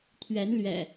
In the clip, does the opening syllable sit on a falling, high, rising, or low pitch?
rising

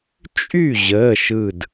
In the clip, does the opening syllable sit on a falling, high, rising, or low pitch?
falling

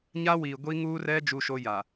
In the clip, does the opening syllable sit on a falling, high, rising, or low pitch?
high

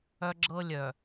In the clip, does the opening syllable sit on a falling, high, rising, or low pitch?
high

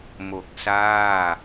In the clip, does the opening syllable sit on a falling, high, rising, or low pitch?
low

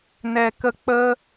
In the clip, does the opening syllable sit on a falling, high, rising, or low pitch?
low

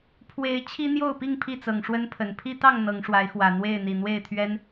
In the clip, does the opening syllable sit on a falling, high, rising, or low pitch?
rising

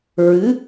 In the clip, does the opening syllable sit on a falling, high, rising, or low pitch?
rising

